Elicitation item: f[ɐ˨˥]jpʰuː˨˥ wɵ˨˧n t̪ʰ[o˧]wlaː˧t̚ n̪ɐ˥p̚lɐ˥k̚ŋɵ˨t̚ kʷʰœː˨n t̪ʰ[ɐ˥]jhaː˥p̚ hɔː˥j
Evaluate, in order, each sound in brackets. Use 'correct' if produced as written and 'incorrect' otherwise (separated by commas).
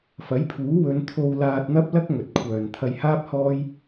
correct, correct, incorrect